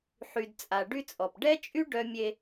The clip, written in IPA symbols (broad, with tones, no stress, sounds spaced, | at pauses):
ħ y˨ d t͡sʼ a˨ ɖ y˦ t͡sʼ ɔ˨ p ɖ ɛ˦ t͡ʃʼ y˦ ɖ œ˦ mʲ e˦